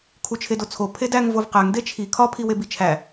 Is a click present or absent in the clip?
absent